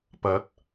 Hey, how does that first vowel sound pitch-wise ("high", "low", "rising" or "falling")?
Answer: rising